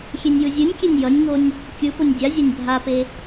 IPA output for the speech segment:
xʲenʲjɯzʲɯnʲkʲenʲ jʌnʲŋonʲ | kʲɯ ponʲdʲazʲanʲ bʱape

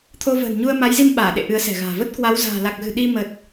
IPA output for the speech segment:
t̪ʰo˧və̤ː˨˩nɲu˧ə̯ ma˨˦jzi˧m ɓaː˧˩ɗḛ˧˨ ʔɨ˨˦ə̯sɛ̤˨˩ɣa̤ː˨˩ və˦˥t̚kwa˨˦w za̤ː˨˩la˨˩k̚ɣɨ̤˨˩ ɗi˧mə˨˩t̚

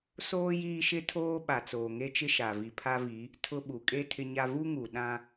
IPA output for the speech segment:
soː˦ jiː˦ʃɪ˦tʰoː˦ ɓa˨t͡soː˨ŋe˦t͡ʃɪ˦ ʃa˨vi˨ pʰa˦vi˨˦ | tʰʊ˦ ɓu˨kʼe˦ tʰɪ˦ɲa˦ vu˦ŋu˨ ɗã˦

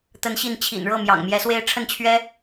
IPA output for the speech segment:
t̪ə˧˥nɕi˧˥n t͡ɕʰḭ˨˩n ɻɤ˥˩ mjɑ̰˨˩ŋmjɛ˧˥swe˥ɪ̯ ʈ͡ʂʰə˥˩nt͡ɕʰɥɛ˥

